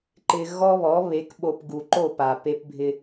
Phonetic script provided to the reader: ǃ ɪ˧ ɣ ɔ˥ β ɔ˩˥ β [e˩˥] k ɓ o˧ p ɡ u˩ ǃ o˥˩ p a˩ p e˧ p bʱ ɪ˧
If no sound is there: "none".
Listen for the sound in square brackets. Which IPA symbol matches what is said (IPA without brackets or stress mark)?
e˩˥